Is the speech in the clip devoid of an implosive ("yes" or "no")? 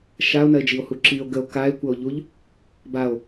yes